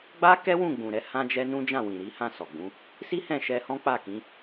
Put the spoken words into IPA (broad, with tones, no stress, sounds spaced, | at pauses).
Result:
ɡ͡b a˦ k ɛ˦ w ũ˦˨ ɡ͡b ũ˨ ɾ ɛ˧ h ã˦ d͡ʒ ɛ˦ n ũ˦ d͡ʒ ã˦˨ w ĩ˨ ɾ i˨˦ h ã˦˨ s ɔ˨ ɡ͡b ũ˨˦ | s i˦ h ɛ̃˦˨ ʃ ɛ˧ h ɔ̃˦ k͡p a˦˨ k ĩ˨˦